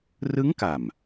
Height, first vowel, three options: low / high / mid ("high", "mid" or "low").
high